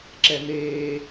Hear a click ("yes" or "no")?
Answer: yes